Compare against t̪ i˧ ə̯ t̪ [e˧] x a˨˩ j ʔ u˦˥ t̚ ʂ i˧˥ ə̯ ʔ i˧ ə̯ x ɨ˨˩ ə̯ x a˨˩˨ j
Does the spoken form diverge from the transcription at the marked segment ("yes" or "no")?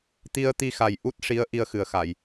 yes